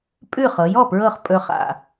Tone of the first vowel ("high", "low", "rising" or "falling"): falling